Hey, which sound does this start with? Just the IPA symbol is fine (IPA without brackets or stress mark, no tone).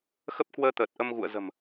x